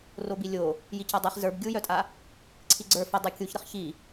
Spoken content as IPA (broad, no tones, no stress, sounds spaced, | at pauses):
r o b i lʲ o | j i c a dˤ i χ z ə˞ b ɡʲ u j œ tʼ a | ǀʰ i ɡ͡ǀ ə˞ f ə dˤ ɛ kʲ u ç ɾ ə χ ç i